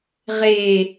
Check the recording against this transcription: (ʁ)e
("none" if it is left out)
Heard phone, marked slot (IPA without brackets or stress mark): ʁ